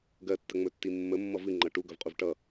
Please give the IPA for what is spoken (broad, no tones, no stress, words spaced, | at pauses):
ɡɜtːəŋ͡mɵtːi mːəmːʌ vɨŋ͡ǃʌ ʈuɡɵvqʼuv ʈʌ